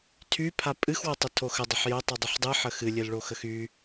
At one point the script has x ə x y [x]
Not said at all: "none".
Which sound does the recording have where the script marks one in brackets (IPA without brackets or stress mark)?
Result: none